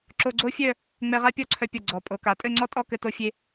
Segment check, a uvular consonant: present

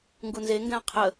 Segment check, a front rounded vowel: absent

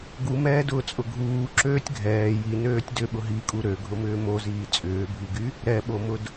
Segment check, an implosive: present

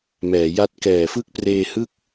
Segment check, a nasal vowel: absent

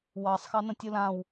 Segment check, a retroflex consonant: absent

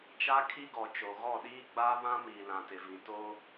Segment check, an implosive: present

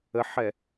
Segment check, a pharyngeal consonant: present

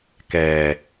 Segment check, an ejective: absent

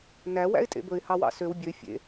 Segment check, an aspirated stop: absent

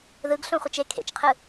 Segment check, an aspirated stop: present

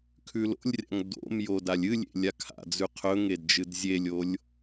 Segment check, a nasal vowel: absent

